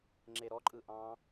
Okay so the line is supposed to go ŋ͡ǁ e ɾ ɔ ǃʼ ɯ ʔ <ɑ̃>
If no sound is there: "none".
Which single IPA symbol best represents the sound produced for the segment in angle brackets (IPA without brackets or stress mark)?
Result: ɑ̃